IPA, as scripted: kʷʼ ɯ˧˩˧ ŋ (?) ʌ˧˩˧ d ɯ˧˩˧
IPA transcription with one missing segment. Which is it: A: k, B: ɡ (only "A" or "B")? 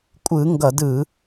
B